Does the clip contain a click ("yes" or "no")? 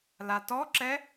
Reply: yes